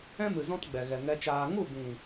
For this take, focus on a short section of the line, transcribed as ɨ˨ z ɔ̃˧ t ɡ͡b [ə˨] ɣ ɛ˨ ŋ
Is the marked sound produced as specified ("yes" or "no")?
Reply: no